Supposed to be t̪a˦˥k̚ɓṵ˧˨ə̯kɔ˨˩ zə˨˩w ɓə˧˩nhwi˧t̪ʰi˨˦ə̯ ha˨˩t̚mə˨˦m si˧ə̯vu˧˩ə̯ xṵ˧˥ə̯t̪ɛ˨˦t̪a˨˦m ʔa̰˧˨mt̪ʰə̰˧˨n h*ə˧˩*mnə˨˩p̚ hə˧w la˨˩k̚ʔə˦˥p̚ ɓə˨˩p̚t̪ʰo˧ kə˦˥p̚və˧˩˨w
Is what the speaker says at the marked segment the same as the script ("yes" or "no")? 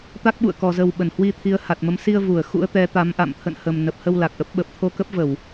no